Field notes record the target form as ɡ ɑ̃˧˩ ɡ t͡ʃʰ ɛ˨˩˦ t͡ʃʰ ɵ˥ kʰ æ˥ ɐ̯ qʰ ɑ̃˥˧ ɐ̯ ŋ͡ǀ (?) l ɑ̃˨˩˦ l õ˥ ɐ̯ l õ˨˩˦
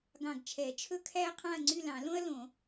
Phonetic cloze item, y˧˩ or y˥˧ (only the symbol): y˥˧